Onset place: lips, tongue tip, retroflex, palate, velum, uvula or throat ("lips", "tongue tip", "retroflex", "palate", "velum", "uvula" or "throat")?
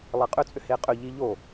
tongue tip